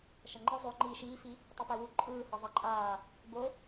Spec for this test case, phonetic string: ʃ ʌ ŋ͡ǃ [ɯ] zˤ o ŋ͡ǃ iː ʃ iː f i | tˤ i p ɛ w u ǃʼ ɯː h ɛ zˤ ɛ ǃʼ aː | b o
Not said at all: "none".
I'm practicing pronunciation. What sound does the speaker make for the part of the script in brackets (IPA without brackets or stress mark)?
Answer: ɯ